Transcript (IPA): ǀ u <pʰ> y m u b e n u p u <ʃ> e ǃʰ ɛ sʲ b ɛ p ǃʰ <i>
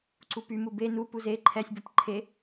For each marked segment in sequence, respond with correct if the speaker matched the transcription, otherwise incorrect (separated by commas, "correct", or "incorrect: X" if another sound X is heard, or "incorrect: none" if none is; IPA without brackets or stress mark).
incorrect: p, incorrect: z, incorrect: e